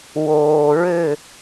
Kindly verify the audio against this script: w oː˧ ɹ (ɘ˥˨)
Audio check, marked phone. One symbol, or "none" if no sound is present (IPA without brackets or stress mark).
ɘ˥˨